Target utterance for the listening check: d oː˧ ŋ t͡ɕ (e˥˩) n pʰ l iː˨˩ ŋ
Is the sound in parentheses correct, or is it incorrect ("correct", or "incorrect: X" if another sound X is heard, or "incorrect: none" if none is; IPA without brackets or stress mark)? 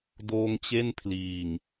correct